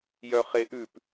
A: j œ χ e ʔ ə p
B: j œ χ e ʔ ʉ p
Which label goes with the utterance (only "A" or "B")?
B